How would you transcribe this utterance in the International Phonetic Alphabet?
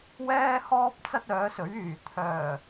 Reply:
wɛː˥hɔː˥p̚t͡sɐ˥t̚ œː˨˥sɵ˨˥ɥyː˨ t̪ʰœː˨˩

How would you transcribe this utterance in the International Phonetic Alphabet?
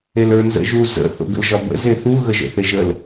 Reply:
elə˞nzə̰ʒu zə̰ θo̰ɡə̰lʒɒbə̰ zeθu ɣəʒə̰θeʒəl

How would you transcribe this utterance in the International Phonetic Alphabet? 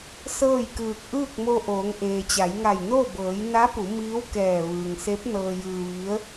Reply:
sɤː˥˨jkɯː˧˩k̚ ʔɯː˥˨k̚mo˧ʔoː˩˧ŋ ʔeː˩t͡ɕa˩˧jŋa˧˩j no˥˨ bɤː˩˧j na˧˥pu˩˧ miː˧˥wkɛː˧˩ ʋɯː˩ŋse˧˥p̚ nɤː˧jɯː˧ ʋi˧˥ə̯

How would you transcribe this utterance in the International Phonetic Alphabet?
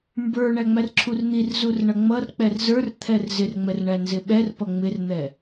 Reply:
mbə˞ ɳæŋ͡mærǁʰurn̪ir zurɳʌŋ͡mʌrk͡pɛr zə˞r t̪ʰɛrzɪrŋ͡mɛr ɳænzɪɓɛr pʌŋ͡mɪrn̪ɛ

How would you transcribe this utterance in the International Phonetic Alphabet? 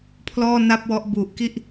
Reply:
pʰlɔː˥˩na˥˩p̚wɔ˦˥ʔ bu˨˩ʔki˥˩ʔ

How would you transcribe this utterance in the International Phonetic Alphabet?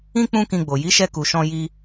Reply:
ĩ˦ k͡pũ˦kĩ˧ɡ͡bo˨ ji˨˦ʃɛ˧ku˨ ʃɔ̃˧ ji˦

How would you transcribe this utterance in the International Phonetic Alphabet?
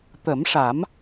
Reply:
t̪ə˨˩˦mʂa˨˩˦m

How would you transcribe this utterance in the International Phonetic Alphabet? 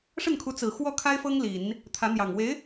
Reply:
ʂə˥˩nkʰu˧˥ t͡sɹ̩˨˩ xwɔ˥˩kʰa˥ɪ̯fɤ˥ŋ li˨˩˦n | t̪ʰä˧˥n̪jɑ˨˩ŋ we˧˥ɪ̯

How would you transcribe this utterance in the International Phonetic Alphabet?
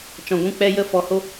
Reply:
t͡ʃɔ̃˨ɡʷũ˦˨k͡pɛ˧jə˦˨ fɔ˨ho˧

